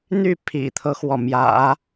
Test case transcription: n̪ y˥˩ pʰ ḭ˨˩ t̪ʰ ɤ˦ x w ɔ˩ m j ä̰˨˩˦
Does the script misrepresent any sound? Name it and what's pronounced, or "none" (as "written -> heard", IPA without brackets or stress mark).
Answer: none